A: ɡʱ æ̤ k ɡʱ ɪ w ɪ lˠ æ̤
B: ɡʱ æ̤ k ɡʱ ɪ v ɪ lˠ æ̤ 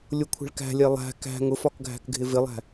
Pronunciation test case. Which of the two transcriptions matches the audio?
B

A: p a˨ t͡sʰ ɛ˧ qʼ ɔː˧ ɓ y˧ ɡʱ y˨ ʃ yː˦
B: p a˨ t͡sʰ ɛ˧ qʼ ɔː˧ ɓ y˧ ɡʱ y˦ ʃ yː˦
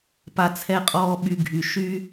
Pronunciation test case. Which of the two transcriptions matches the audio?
A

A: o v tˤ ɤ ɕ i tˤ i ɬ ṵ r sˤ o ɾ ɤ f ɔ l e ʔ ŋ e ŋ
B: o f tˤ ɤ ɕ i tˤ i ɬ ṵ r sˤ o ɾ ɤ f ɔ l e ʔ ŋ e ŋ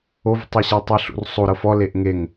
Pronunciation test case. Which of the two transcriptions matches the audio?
A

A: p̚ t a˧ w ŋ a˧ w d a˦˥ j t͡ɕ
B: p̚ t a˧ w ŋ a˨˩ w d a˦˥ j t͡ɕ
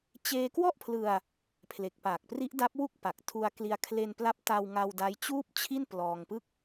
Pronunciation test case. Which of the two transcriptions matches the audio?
A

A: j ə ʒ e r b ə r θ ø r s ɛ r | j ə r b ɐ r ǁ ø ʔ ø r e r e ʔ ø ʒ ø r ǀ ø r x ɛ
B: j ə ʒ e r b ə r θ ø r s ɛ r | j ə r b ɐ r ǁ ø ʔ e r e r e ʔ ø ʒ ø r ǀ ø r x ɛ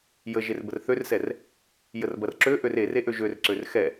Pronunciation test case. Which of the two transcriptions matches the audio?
A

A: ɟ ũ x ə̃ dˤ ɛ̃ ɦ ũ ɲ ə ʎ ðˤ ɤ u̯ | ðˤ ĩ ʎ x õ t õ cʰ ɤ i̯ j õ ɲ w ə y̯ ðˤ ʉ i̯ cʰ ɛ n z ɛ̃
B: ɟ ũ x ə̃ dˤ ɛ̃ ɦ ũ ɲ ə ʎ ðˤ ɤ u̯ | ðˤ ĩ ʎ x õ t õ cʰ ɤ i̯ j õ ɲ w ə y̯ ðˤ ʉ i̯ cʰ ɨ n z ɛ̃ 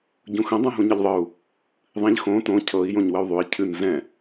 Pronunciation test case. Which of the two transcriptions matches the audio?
B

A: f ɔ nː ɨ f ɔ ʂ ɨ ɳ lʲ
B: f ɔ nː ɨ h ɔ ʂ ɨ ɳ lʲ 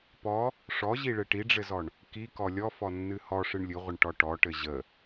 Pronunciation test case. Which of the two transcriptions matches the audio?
B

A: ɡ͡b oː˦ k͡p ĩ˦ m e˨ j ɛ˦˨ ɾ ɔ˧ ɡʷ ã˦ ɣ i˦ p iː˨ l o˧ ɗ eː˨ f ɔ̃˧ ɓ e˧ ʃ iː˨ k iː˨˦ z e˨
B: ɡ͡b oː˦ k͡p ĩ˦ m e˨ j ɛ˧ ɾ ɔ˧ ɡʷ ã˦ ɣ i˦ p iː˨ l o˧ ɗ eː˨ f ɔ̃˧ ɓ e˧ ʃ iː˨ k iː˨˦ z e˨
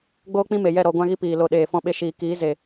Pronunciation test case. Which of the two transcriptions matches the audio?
A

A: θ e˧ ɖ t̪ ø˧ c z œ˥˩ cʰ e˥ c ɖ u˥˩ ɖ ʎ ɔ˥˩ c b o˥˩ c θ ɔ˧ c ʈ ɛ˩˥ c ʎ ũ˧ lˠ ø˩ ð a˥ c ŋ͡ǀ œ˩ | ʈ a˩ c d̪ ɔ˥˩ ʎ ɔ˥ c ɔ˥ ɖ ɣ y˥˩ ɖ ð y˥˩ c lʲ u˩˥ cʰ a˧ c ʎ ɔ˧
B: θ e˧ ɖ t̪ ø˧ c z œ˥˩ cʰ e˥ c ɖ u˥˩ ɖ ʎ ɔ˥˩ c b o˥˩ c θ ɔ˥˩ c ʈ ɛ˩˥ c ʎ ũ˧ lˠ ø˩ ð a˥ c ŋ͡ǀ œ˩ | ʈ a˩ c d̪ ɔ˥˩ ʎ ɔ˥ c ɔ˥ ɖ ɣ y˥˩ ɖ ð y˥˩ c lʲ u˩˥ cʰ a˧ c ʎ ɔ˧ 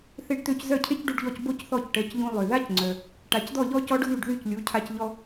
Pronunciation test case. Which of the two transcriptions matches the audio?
A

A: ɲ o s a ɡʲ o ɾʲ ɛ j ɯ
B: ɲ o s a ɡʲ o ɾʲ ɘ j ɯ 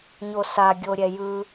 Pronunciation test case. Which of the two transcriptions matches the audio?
A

